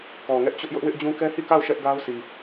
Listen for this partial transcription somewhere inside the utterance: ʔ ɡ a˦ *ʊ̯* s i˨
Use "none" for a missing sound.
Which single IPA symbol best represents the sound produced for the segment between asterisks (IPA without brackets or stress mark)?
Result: ʊ̯